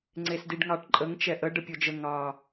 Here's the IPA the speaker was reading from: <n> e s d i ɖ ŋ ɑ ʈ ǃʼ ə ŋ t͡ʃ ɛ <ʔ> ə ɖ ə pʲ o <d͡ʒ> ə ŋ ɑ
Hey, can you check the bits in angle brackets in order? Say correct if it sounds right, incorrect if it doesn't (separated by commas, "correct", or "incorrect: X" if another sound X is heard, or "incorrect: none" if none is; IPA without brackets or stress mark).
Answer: incorrect: ŋ͡ǀ, correct, correct